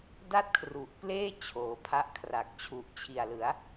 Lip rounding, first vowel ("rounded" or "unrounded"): unrounded